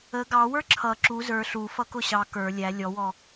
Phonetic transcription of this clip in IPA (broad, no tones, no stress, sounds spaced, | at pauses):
ə ɡ ɑ w ə˞ ǁʰ ʌ ǁ u z ə˞ ɬ u f ʌ k ʊ ɕ ɑ k ə˞ lʲ æ lʲ ɔ w ɔ